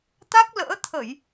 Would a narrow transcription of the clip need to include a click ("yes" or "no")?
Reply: no